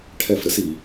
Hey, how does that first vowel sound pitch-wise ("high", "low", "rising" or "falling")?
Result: falling